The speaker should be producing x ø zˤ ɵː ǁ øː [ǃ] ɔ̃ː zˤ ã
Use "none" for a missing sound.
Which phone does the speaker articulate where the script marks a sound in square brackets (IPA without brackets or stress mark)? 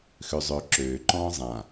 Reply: ǃ